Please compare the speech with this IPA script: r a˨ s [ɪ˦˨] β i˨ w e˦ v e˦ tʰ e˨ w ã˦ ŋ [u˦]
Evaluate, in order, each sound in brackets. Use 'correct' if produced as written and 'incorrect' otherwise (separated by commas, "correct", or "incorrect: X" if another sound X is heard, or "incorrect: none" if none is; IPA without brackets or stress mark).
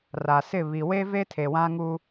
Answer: correct, correct